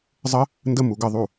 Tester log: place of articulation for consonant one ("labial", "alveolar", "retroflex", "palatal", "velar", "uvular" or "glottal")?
alveolar